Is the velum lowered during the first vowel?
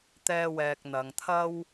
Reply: no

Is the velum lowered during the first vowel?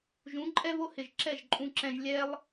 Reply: yes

